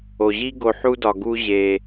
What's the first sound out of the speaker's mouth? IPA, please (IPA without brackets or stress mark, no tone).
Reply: o